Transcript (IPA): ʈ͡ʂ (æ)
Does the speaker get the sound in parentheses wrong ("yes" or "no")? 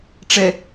yes